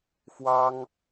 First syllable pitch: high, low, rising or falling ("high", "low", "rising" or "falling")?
high